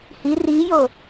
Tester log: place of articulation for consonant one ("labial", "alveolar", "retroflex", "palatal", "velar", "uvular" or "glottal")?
glottal